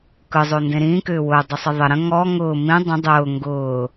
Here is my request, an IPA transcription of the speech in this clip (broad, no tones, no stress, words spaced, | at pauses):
kɯzˤondẽ ɾĩːkʏː wʊːdˤəsˤə ðˤə ɾə̃ ŋɔ ŋʊː mĩ dˤə̃ dˤʊː ŋɡʊː